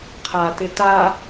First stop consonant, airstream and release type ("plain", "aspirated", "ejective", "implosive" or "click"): aspirated